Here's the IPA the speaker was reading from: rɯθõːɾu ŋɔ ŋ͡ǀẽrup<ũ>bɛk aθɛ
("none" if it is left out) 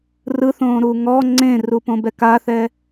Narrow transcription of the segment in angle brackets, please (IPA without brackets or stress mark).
õ